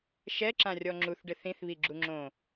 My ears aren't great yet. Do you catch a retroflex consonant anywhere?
yes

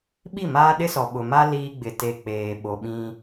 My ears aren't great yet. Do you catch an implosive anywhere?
yes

